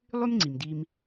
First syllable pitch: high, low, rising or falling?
high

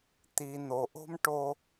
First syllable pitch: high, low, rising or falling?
low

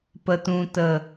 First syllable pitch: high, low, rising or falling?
low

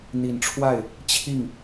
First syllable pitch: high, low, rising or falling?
low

